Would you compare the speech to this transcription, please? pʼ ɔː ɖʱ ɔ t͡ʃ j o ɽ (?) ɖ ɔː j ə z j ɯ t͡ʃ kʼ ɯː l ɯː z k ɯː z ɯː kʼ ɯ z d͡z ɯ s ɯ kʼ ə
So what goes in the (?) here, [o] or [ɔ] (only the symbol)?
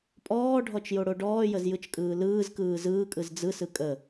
o